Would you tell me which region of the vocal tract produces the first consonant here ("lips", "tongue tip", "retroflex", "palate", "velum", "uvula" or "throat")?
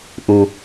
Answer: throat